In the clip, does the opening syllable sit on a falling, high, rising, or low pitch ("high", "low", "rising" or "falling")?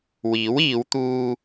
rising